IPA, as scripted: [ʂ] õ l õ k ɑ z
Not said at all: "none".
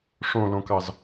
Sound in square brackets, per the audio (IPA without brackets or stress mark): ʂ